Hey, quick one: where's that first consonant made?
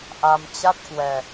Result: throat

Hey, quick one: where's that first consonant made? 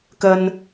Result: velum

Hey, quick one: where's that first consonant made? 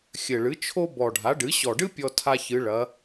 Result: velum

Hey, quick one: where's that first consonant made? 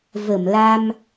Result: lips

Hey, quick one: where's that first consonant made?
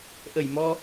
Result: throat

